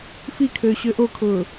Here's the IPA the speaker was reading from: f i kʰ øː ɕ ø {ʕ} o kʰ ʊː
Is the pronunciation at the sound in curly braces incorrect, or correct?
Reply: incorrect